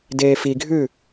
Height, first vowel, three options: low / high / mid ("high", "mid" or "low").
mid